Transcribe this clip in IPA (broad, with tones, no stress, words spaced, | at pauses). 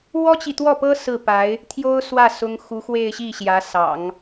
wɔ˥t͡ɕi˨t̪wɔ˥˩pɤ˥ sɹ̩˥˩pa˧˥ɪ̯ | t̪ʰjo˥ʊ̯swä˥˩ sʊ˥ŋ xu˧˥xwe˥˧ɪ̯ɕi˥˩ɕjä˧˥ sɑ̰˨˩˦ŋ